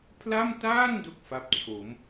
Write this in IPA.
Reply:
pʰ l a˥˩ m t aː˥˩ n d o˥˩ k̚ f a˦˥ p̚ t͡ɕʰ o˩˦ m

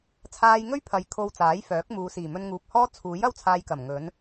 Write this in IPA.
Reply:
t͡sʰ aː˧ j ŋ ɵ˥ ɥ pʰ ɐ˨ j kʰ o˧ w t͡s aː˨˥ j f œː˨˥ k̚ m uː˨˧ s iː˨˩ m ɵ˧ n ŋ uː˨ p̚ h ɔː˥ t͡sʰ uː˨˥ j ɐ˥ w t͡sʰ aː˧ j k ɐ˨˩ m ŋ ɵ˨˥ n

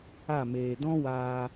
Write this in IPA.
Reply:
a˦˨ m eː˨ d ɔ̃˦ w aː˧

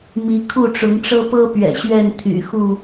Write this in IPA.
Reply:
m i˨˦ kʰ u˥˨ ʈ͡ʂ ʊ˨˦ ŋ ʈ͡ʂ ɤ˦ p ɤ˦ p ɥ ɛ̰˨˩ ɕ ɥ ɛ˥˨ n t̪ʰ y̰˨˩ x u˥˨

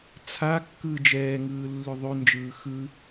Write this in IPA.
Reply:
t͡sʰ a kː ɯː d͡ʒ ɛː ŋ ɯː lː ʉ ðˤ ʉ n d͡ʒ ɯː x ɯ

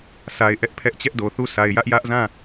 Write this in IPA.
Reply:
sʰ a˨ ɪ̯ ʔ ɛ˦ ʔ pʰ ɛ˦ ʔ t͡ɕ ɛ˦ ʔ d o˨ θ u˦˨ sʰ a˨ ɪ̯ j ä˦ ʔ j ä˦ ʔ z ã˦˨

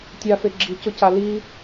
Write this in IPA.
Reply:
tʲ a f e ɡ͡ǁ i c ʊ c a l i

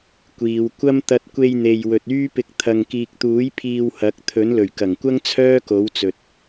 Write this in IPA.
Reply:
kʷ iː˨˧ w kʷ ɐ˥ m t̪ ɐ˧ t̚ kʷ e˧ j n̪ e˨ j w ɵ˨ t̚ yː˥ p ɪ˧ k̚ t̪ʰ ɐ˨ ŋ k iː˨ k̚ t̪ uː˨˥ j pʰ iː˧ w h ɐ˨˥ k̚ t̪ʰ ɵ˨˥ n l ɵ˨˩ ɥ k ɐ˨˩ ŋ kʷ ɐ˥ ŋ t͡sʰ œː˥ k o˨˥ w t͡s ɵ˨ t̚

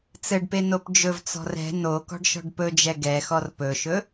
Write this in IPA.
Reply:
t͡s ɘ ɖ p e n o p d͡ʒ ɵ v t͡s ɔ̤ r ɛ̤ n o k ɔ̤ ɖ ʃ ɔ̤ ɖ p ɵ d͡ʒ ɛ ɡ ɛ x ɔ r p ɵ ʃ ɵ

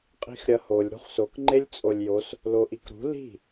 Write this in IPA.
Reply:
qʼ i̤ x ɾʲ ɐ h o lʲ ɾ ṳ χ s o k ŋ͡ǃ e lʲ t͡sʼ o lʲ j o s | l o ʔ i k ɾ ṳ l i̤

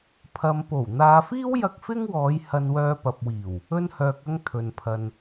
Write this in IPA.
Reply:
pʰ ɐ˨ m p o˨˩ w n̪ aː˨ f iː˥ w j ɐ˧ k̚ f ɪ˥ ŋ w ɔː˨˧ j h ɐ˧ n w œː˧ p ɐ˨ p̚ w iː˨˩ w | ɵ˧ n h œː˨ k̚ ɐ˧ ŋ t̪ʰ ɵ˨ n pʰ ɐ˨ n

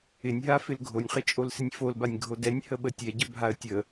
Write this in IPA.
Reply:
ɪ nʲ ɦ a f ɪ l ɡʱ o nʲ χ ɪ t͡ʃʼ o l s ɪ nʲ f o l b a nʲ ɡʱ o d ɛ nʲ h ə ɓ ə tʲ ɛ ɟ ə bʱ a ə̯ tʲ ə

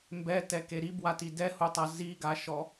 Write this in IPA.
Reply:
m b ɛ t ɛ k e ɾ i b w a t i d ɛ h u tˤ a z i ɡ a ʃ ɔ

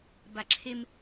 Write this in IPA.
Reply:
b a ǁʰ e m

